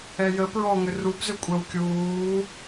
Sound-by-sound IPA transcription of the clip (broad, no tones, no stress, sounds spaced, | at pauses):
ɛ j ə p ɹ ɔ ŋ ʏ r u b z ʏ kʷʼ ɛ w kʲ uː